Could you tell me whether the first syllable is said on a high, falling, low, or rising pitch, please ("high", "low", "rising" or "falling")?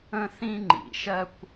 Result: high